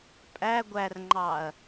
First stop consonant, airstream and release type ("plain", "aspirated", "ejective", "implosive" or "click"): ejective